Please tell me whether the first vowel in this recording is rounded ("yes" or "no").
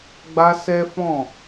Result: no